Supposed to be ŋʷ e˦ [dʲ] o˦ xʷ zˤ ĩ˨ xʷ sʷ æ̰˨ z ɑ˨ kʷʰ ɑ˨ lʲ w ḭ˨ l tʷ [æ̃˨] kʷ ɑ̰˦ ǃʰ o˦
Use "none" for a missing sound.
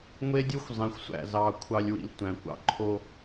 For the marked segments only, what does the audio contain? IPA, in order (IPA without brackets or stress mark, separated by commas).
dʲ, æ̃˨